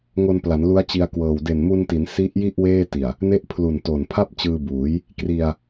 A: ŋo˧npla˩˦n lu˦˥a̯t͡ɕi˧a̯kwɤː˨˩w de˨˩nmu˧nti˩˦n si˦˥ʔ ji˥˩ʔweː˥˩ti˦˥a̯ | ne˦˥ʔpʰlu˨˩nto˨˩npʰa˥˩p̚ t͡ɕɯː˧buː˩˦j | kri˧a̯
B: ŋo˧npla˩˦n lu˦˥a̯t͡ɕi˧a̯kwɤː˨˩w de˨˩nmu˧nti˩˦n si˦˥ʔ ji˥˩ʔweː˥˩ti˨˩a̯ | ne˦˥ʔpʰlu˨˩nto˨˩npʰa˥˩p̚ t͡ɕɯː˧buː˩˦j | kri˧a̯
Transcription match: B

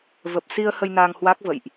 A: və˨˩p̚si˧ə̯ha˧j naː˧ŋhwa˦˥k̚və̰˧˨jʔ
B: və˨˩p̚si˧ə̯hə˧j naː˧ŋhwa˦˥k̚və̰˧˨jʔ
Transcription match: B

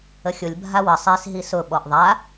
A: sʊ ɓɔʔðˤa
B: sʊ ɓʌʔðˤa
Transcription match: A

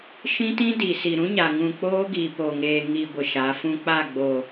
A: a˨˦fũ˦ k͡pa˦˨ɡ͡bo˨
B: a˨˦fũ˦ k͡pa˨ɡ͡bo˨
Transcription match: A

